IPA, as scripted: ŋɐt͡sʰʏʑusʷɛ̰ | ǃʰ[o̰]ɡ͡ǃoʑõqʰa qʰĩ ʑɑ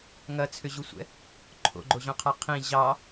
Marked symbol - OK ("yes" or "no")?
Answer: yes